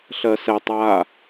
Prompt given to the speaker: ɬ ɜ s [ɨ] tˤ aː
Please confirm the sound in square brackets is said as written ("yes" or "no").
no